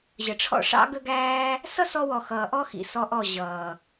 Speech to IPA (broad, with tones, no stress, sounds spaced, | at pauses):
ʑ ə˨ ʈ͡ʂʰ ɔ̰˦ ʂ ɑ̰˦ ɡ ə˦ ɡ æː˦ | s ʌ˦ s ɔ˧ w ɔ˨ x ʌː˨ ʔ ɔ˦ x ḭ˨ s ɔ˧ ʔ ɔ˦˨ ʑ ʌː˨